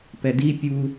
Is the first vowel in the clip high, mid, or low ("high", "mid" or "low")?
mid